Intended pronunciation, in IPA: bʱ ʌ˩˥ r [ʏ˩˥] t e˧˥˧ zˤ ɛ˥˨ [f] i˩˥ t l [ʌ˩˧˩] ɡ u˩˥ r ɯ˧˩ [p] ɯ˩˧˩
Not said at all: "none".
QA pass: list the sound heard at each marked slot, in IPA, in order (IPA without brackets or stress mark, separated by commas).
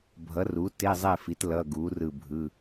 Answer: u˩˥, f, ʌ˩˧˩, bʱ